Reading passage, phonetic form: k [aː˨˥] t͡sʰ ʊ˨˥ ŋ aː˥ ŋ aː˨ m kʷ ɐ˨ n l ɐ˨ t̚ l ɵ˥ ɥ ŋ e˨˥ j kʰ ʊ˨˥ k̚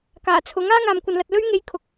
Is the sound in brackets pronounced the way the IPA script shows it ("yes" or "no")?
no